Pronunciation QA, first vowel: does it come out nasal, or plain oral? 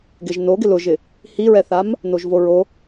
oral